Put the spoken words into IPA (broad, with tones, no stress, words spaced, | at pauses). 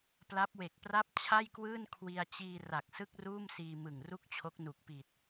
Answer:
pla˦˥p̚we˨˩k̚pra˥˩p̚ t͡ɕʰa˥˩jkwɯː˥˩n kʰwi˧a̯ t͡ɕiː˧ ra˨˩k̚sɯ˥˩k̚ruː˥˩m siː˧mɯ˨˩ŋru˥˩k̚t͡ɕʰo˦˥k̚ nu˨˩k̚pi˨˩t̚